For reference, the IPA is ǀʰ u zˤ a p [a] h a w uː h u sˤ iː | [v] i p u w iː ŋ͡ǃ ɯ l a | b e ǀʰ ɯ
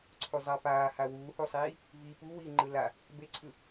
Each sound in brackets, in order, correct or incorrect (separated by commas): incorrect, correct